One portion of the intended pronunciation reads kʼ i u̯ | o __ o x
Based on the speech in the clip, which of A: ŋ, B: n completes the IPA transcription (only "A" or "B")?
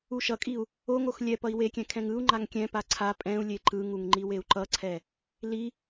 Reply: A